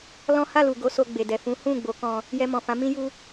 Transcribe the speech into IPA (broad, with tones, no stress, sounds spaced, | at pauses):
l ɔ̃˦ h a˦˨ l u˨ ɡ o˨˦ s o˧ ɡ͡b e˨ d ɛ˨ f ũ˨˦ h ũ˦˨ ɡ͡b o˨˦ k ɔ̃˧ | j ɛ˧ m ɔ̃˨ f ã˨˦ m ĩ˦ j u˦